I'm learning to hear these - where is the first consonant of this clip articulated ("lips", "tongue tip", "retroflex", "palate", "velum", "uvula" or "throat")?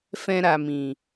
lips